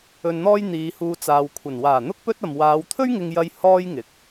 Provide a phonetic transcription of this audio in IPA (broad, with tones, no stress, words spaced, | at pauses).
ɵ˧nn̪ɔː˥jn̪iː˨˧huː˧ t͡saː˨wkʷʰɐ˨˩n waː˨˩n̪ʊ˥k̚ pɵ˥t̚ ɐ˨m waː˨˧wt̪ʰɵ˥ɥ ŋɪ˧ŋjɐ˧j hɔː˥jŋɪ˨˥k̚